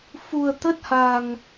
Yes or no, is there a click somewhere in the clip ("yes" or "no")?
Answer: no